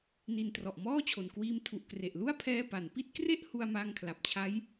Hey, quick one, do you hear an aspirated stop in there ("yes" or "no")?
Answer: yes